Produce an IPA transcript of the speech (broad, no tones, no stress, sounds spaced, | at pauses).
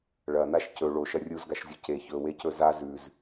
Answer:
ɭ ɐ n a ʃ c ɵ ɭ o ʃ ɐ rʲ u z ɡ a ʃ zʲ o c e ç ɵ w e c ɵ z a z ʉ z